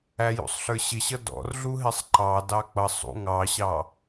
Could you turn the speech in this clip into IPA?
æ j ṵ sˤ ɬ ə˞ ɕ ɪ ɕ ʌ d ɔ̰ r ɮ u ɦ ɪ sˤ ǃ ɑ d ɑ k͡p ʌ sˤ ṵ ŋ ɑ ɕ ɑ

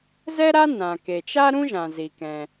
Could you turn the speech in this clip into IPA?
z ɛ˥ ɾ a˥ n ã˩ k e˩ t͡ʃ a˥ ɾ ũ˥ ʒ ã˩ z i˩ k ɛ̃˩

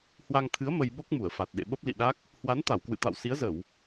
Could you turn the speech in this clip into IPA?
h w a˧ ŋ t̪ʰ ɨ˨˦ ə̯ m ə˧ j ɓ o˦˥ k̚ m u˧˩ ə̯ f a˨˩ t̚ ɗ ḛ˧˨ ɓ ə˦˥ p̚ l ḭ˧˨ ɗ a˦˥ k̚ | h w a˨˦ n t̪ a˧˩ w k w ɨ̰˧˨ t̪ a̰˧˨ w s i˨˦ ə̯ z ə˧˩˨ w

